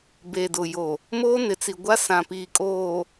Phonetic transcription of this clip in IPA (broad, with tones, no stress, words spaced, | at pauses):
be˨dʊ˨ jo˨ | moː˦nɪ˨t͡si˨ɡʷa˦ sã˨piː˨kʼoː˨